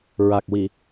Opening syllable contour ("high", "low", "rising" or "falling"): low